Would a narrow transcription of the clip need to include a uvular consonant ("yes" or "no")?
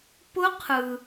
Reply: yes